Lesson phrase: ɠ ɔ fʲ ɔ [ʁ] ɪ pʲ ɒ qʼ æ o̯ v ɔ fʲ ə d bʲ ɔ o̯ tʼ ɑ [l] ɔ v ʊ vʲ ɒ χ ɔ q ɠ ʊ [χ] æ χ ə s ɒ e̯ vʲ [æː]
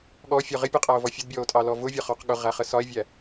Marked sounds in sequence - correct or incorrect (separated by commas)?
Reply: correct, correct, incorrect, incorrect